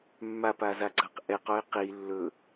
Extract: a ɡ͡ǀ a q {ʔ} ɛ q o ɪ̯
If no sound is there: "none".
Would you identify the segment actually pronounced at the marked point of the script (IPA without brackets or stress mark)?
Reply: ʔ